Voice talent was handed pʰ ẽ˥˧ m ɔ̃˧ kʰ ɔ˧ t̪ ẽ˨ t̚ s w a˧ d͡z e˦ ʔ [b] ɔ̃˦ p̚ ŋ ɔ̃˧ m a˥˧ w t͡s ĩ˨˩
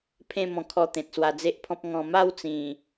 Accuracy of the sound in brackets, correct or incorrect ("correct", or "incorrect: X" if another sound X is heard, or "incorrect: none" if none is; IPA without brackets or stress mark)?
incorrect: pʰ